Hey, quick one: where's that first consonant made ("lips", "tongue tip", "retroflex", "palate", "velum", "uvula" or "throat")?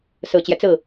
tongue tip